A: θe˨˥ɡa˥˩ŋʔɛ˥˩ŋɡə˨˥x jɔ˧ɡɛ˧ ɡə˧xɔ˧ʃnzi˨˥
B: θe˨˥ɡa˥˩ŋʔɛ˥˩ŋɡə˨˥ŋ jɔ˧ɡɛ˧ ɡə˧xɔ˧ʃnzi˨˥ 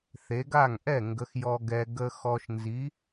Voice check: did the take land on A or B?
A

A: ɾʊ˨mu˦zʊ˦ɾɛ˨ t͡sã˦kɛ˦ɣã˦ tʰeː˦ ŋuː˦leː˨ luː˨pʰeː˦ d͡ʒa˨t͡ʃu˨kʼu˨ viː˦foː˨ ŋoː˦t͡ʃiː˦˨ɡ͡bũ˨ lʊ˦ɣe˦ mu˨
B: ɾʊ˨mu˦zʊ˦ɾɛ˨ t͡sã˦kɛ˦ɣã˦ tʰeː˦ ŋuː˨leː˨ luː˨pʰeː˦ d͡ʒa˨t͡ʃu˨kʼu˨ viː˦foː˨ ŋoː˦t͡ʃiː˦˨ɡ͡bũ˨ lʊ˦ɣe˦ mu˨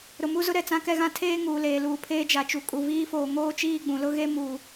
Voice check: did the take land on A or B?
B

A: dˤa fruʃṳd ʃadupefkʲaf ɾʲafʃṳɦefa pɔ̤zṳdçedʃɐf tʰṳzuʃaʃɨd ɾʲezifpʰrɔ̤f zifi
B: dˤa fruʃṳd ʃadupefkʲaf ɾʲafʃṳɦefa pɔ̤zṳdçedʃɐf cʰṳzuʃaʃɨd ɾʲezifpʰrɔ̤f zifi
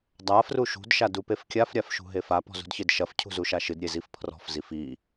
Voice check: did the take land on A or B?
B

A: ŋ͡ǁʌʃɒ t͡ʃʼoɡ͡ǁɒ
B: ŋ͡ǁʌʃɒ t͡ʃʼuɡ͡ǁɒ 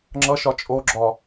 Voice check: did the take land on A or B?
A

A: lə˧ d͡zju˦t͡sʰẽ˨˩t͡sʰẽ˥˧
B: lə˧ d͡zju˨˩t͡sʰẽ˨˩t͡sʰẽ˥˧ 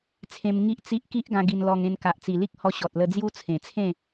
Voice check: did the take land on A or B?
A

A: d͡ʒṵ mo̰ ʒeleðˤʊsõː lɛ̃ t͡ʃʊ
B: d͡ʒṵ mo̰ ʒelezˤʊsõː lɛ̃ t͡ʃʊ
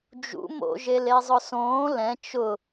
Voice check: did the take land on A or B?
B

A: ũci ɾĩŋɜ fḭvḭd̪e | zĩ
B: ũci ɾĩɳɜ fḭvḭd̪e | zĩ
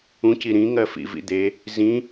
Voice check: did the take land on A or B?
A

